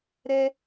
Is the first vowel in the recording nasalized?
no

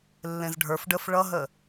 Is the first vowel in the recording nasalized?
yes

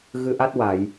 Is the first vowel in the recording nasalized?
no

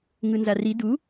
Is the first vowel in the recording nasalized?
no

